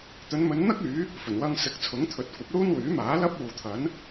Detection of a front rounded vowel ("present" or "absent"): present